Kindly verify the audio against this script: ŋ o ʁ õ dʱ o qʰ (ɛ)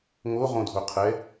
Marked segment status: correct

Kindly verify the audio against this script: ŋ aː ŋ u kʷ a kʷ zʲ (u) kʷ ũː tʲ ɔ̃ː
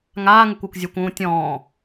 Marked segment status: correct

